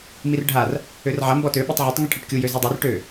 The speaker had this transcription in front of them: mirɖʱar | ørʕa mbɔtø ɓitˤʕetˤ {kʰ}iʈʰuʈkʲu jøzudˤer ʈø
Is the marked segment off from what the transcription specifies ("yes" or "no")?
yes